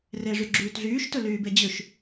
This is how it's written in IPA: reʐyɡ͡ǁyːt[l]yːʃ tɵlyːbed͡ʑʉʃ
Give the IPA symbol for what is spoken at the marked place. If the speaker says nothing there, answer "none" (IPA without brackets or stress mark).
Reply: ɮ